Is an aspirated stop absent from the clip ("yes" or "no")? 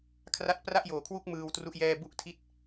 no